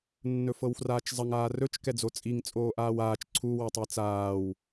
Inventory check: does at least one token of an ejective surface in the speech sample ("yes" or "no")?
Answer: yes